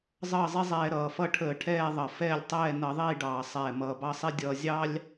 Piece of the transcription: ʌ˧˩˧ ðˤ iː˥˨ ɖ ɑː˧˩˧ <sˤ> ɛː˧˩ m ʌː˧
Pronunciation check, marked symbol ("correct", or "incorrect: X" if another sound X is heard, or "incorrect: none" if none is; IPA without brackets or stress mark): correct